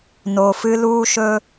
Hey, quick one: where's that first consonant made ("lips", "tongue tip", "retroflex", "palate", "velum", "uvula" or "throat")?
tongue tip